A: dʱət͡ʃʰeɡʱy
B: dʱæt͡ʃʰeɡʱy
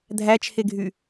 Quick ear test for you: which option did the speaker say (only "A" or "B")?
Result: B